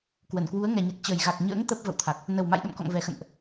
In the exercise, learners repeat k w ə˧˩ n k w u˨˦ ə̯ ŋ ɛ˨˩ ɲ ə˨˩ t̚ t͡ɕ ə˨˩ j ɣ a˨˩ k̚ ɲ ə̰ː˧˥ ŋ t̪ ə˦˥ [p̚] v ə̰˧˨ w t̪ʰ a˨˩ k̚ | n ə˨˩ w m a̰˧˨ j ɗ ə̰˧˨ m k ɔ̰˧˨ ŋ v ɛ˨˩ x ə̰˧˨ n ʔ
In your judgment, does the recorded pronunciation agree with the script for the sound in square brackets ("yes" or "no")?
yes